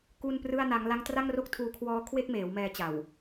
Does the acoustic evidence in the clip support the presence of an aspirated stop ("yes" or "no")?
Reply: yes